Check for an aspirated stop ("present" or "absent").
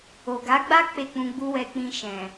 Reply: absent